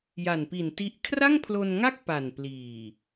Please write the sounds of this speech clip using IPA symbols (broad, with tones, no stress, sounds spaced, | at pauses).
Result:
j a˨˩ n p i˨˩ n t i˦˥ ʔ kʰ r a˥˩ ŋ pʰ l o˧ n ŋ a˥˩ k̚ p a˨˩ n p l iː˨˩